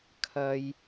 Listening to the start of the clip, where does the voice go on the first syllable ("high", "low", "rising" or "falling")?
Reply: high